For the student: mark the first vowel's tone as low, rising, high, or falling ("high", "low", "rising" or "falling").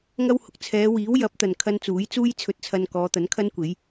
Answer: high